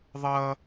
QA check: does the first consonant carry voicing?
yes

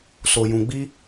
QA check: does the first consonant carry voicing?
no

